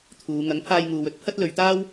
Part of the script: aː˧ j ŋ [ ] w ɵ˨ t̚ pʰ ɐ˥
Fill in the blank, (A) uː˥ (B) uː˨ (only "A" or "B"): B